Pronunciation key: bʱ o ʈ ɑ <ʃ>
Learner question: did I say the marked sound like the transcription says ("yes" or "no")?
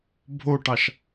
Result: yes